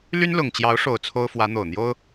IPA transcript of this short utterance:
l y˥ n l ʊ˨˩ ŋ t͡ɕ j ɑ˧˥ ʊ̯ ʂ o˨˩ ʊ̯ t͡sʰ o˥ ʊ̯ f w ä˧˥ n̪ o˨˩ ʊ̯ n̪ j o˥ ʊ̯

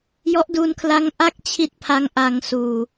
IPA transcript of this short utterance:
j ɔ˦˥ ʔ d u˧ n kʰ l a˦˥ ŋ ʔ a˥˩ k̚ t͡ɕʰ i˦˥ t̚ pʰ a˦˥ ŋ ʔ a˧ ŋ s uː˨˩

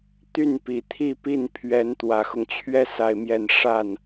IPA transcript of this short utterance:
t̪ y˥˩ n p i˨˩ t̪ʰ i˥˧ p i˥˩ n pʰ ɥ ɛ˧˥ n t̪ w ä˨˩ x ʊ˦ ŋ t͡ɕʰ ɥ ɛ˥ s a˥˧ ɪ̯ m j ɛ˥˧ n ʂ a˥˩ n

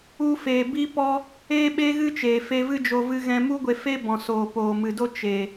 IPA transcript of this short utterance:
u˧ f eː˨ b i˦ p ɔ˦ | eː˦ ɓ e˦ ɣ ɨ˦ t͡ʃ eː˨ f e˧ v ɨ˦ d͡ʒ o˧ v ɨ˧ ɣ ɛ̃˧ m u˦ ɡʷ e˧ f e˦ b ɔ̃˨ s oː˨ p oː˨ m ɨ˨ d o˦ t͡ʃ e˨

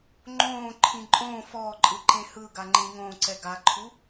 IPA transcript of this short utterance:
ŋ͡ǃ õː ǃʰ ĩ ǃʼ õː f ɔː ǃʼ ɯ ǃ ẽ h ɯ ɡ a ŋ͡ǃ ĩ ŋ õː ǀ ɛ ɡ a ǃʰ u

